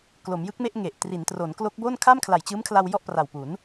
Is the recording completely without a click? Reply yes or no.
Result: yes